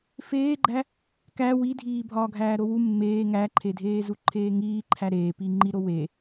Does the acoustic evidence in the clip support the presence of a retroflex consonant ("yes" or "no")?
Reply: no